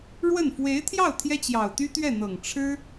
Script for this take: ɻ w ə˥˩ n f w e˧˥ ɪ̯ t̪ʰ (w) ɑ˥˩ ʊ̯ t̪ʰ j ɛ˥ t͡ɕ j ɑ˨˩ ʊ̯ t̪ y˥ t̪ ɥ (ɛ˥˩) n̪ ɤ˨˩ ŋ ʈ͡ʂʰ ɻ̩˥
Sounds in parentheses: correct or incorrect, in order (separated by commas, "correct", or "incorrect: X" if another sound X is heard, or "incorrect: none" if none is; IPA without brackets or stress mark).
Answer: incorrect: j, correct